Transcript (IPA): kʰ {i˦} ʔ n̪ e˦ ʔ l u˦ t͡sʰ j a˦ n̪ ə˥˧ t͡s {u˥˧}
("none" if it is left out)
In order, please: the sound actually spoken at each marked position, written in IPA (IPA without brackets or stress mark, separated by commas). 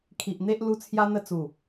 i˨, u˨˩